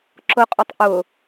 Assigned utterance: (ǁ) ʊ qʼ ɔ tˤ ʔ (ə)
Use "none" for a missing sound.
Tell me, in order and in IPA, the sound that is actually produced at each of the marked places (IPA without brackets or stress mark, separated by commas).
ǁ, ʊ